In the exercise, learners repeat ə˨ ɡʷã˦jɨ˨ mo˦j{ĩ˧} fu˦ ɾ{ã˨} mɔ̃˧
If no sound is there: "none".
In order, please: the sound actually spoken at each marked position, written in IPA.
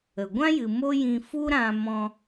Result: ĩ˧, ã˧

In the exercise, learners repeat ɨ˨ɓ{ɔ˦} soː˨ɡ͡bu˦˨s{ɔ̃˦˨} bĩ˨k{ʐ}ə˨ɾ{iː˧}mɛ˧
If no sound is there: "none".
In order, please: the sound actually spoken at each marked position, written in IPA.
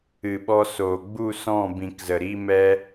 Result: ɔ˧, ɔ̃˦˨, z, iː˧

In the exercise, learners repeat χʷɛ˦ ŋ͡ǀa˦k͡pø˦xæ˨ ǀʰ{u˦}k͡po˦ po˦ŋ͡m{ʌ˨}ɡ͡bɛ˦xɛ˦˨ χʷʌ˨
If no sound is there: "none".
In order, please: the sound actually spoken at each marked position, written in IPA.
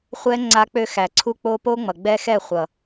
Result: u˦, ʌ˨

